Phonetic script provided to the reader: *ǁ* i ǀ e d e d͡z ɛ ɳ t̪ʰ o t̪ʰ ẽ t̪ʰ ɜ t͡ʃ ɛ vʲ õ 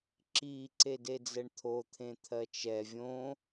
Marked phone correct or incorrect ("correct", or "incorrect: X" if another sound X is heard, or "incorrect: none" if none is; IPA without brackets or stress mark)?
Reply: correct